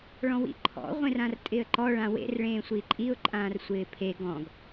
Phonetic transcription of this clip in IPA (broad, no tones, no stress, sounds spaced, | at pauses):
ɭ ɔ̃ w ḭ ǃʰ ɔ̰ ʁʷ ẽ r ã r tʼ ɪː ə̯ ǃ ɔ ɭ ã w ḛ r ɭ ẽː sʷ i ǃʼ i ʊ̯ ǃʼ ãː r sʷ ɪː pʰ e ɡ ɔ̃ ɡ